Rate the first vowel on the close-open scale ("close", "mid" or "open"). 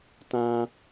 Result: open